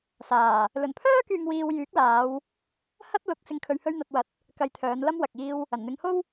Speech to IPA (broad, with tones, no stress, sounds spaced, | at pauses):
s aː˨˩ | l ɵ˨˩ n pʰ œː˥ k yː˨ ŋ w iː˧ w j yː˨˥ k̚ l aː˨˧ w | h ɐ˥ t̚ l ʊ˨˥ k̚ s ɪ˨ ŋ kʰ ɵ˨ ɥ h ɵ˧ ɥ n̪ ɐ˨ t̚ w ɐ˨˥ t̚ | k ɐ˧ j t̪ʰ œː˨˧ n l ɐ˥ m w ɐ˨ k̚ iː˧ w | ɐ˨˩ n n̪ ɪ˨˧ ŋ h o˥ w